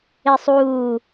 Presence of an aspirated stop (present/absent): absent